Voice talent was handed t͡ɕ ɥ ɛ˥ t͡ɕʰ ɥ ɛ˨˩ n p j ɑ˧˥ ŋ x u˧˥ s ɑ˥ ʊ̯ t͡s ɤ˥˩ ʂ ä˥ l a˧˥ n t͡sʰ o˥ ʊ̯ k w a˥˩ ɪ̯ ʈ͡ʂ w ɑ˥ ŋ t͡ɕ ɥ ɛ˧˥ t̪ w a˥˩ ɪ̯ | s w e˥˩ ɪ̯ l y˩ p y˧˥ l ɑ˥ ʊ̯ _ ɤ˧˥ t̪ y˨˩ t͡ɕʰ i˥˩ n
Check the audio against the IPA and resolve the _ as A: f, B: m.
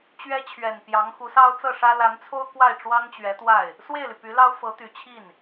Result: A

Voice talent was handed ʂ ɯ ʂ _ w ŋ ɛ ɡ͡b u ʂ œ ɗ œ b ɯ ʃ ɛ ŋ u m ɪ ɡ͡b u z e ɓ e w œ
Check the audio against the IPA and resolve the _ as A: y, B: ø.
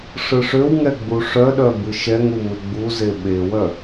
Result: B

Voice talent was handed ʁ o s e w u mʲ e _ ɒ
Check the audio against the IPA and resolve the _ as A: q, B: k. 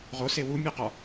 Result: A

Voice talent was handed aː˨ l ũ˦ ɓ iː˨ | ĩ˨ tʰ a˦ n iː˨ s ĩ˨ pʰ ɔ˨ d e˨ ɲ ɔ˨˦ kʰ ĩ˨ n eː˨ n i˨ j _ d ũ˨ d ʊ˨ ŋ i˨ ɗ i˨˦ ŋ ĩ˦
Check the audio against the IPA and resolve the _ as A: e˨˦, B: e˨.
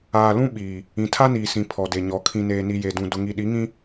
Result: B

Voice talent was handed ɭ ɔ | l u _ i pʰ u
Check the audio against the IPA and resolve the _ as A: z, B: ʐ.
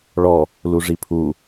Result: B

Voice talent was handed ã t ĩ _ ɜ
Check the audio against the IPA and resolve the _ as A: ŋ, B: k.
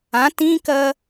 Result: B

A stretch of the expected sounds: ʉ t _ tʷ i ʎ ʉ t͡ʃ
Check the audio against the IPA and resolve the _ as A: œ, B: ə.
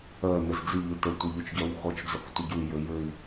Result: B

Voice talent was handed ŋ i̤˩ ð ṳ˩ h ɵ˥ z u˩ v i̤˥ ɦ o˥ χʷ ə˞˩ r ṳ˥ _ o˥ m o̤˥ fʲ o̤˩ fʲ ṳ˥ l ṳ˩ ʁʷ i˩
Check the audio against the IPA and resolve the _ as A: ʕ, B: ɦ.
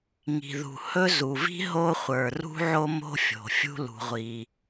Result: A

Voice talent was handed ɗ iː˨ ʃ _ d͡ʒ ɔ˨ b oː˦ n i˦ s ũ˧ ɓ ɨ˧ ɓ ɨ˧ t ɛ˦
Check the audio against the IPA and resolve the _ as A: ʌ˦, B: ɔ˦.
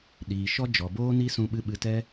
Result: B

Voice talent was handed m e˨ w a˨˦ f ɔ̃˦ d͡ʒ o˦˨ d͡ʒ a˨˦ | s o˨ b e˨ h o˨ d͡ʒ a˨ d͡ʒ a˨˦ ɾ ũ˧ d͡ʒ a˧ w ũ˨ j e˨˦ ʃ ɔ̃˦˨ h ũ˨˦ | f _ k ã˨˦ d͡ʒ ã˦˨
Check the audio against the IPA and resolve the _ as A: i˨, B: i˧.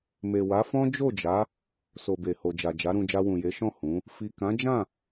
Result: A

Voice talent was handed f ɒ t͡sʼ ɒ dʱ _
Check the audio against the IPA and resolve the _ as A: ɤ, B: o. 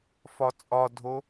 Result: B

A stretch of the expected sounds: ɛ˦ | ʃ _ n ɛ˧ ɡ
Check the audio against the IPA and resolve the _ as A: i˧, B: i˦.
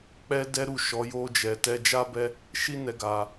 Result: B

